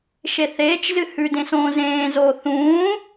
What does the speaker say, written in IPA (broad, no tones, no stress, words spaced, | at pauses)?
ʃeθeːt͡ʃzɨ hʉ dẽsõːzẽːzoː θũː